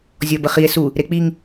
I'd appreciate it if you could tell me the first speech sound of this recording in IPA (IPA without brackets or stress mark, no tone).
zʲ